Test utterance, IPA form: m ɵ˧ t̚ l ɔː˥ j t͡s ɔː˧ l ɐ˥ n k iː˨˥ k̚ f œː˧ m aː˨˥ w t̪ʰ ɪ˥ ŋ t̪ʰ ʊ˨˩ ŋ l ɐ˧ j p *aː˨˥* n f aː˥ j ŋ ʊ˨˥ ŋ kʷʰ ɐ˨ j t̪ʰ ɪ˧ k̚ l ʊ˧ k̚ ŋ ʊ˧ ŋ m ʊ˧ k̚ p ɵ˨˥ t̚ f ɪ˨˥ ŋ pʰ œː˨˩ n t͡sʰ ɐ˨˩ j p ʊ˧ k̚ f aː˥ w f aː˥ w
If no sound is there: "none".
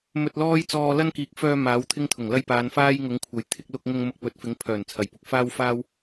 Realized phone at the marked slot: aː˨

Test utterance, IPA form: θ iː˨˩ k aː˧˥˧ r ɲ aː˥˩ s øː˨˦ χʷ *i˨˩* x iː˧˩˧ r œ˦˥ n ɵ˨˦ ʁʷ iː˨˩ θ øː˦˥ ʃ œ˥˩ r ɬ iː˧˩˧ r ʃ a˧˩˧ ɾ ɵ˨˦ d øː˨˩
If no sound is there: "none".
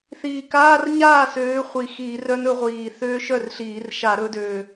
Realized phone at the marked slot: i˨˩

